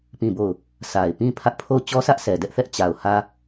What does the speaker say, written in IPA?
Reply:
p ĩ˦˨ b o˦˨ ʊ̯ | s a˨ ɪ̯ p ĩ˦ pʰ ä˦ ʔ pʰ o˦˨ ʊ̯ t͡ɕ ɔ˦ s ä˦ ʔ s ɛ˨ d ɛ˦ ʔ θ ɛ˦ ʔ t͡ɕ a˨ ʊ̯ h ä˦

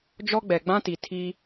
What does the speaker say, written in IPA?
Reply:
d͡ʒ ɔ˦ ɡ͡b ɛ˨ ɡ͡b ã˦ t i˨ tʰ iː˦

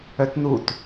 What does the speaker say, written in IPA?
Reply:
œ t n u t

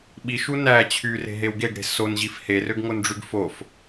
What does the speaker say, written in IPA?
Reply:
ɓ i ʃ u n æ t͡ɕʰ y r e̤ ɦ e w ɡ e ɡ ɽ e̤ s o n ʑ i f h e r ø ɡ ŋ o n ɖ͡ʐ y ɡ f o f

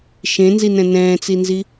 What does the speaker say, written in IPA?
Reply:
ʃ ẽ n z i n ɛ̃ n ɛ̃ː t͡s i n z i

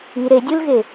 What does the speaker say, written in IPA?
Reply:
i ɾ e dʲ u l ɣ e

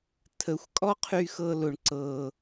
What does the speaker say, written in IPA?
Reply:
tʰ ə˨˦ xʷ kʼ ɔ˦ qʰ y˧ x ɤ˧ l ʊ˧ ɳ ǀ ɤ˧

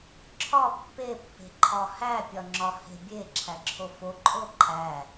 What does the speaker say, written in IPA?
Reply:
ǁʰ ɒ pː e pː e̤ ǃʰ ɒ h æ pʲ ɒ ŋ͡ǁ ɒ h e̤ bʲ e ǁʰ æ ǁʰ o f o ǃʼ o ǃʼ æ

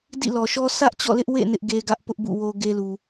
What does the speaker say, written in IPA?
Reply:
d ḭ˦˨ l ɔ˨ ʃ ɔ˦ s ä˦ ʔ t͡ɕ ɔ̰˦˨ l ɪ˦ ʔ w ḛ˦˨ n ɪ˦ ʔ ɡ e˦ ɡ ä˦ ʔ p ʊ˦ ʔ b ṵ˦˨ w o˦ ɡ e˦ l u˨

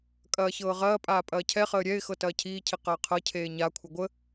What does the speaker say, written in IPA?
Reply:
kʼ ɐː ç ɤː ʁ ɐː pʼ aː pʼ ɐː cʰ ɛ χ əː ɾʲ ɛ ɪ̯ x ɤ t ɐː cʰ iː cʰ i q ɐː qʰ ɤ cʰ eː ɲ a kʷʰ ɪ ɡʷ ə

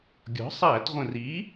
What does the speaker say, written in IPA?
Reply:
ɡʲ ɔ̤˩˥ sˤ æ˧˩˧ t ʁʷ ə̃˨˩ r i˩˥

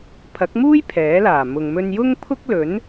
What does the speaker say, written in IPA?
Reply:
pʰ ɐ˨˥ k̚ m uː˥ j pʰ ɛː˨˥ l aː˨˩ m ʊ˨ ŋ m ɵ˧ n j ʊ˥ ŋ pʰ ʊ˥ k̚ l ɵ˨˥ n

